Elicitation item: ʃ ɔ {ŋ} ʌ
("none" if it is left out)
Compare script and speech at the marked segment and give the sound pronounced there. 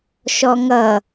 ŋ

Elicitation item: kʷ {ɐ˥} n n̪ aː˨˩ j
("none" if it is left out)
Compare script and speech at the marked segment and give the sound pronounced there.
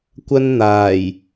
ɐ˥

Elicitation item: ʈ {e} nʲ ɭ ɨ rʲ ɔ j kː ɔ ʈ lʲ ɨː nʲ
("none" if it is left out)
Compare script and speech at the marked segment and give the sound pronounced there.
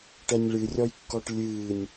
ɛ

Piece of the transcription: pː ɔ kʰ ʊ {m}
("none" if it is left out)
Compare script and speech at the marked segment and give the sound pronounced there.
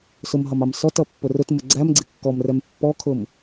m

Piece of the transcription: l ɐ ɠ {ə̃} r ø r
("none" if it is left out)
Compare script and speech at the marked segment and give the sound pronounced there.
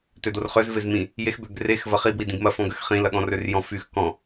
ɔ̃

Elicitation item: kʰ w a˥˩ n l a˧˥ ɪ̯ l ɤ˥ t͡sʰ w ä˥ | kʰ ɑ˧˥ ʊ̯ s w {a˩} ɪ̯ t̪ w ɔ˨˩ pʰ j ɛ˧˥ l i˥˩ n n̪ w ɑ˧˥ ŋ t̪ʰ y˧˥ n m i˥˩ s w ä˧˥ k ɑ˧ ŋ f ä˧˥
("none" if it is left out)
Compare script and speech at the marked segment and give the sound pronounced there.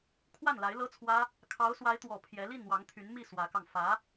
a˧˥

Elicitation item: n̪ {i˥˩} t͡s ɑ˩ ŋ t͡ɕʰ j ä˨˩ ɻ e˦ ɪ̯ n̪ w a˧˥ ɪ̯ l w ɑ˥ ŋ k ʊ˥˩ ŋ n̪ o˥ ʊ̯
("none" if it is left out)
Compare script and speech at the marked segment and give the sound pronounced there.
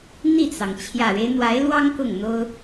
i˥˩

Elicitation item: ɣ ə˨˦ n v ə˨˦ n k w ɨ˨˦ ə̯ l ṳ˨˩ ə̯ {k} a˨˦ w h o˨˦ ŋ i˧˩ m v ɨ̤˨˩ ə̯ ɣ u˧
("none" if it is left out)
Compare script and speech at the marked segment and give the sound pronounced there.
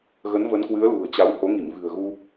t͡ɕ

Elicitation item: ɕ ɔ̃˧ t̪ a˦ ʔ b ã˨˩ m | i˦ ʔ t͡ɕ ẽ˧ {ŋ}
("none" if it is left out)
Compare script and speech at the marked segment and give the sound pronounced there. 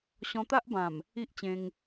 ŋ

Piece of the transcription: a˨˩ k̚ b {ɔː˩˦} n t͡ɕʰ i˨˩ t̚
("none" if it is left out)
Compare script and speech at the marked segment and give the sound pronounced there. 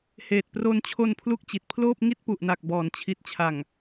ɔː˩˦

